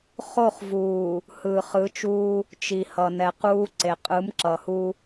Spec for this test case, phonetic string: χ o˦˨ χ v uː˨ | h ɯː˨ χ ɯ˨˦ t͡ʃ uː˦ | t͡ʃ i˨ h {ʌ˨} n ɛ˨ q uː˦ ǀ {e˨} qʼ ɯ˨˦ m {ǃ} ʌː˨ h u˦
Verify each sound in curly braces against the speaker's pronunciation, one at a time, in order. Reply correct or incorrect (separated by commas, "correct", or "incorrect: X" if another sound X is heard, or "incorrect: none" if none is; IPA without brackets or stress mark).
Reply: correct, correct, incorrect: ǁ